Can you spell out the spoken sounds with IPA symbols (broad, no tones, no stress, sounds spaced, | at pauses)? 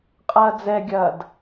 qʼ ɐː d͡z ɛ ɡʲ ɐː d